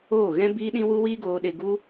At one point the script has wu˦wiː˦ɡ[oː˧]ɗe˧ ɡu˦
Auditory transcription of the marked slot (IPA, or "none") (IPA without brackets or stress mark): oː˧